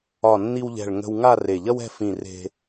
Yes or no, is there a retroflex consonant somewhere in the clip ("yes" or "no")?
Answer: yes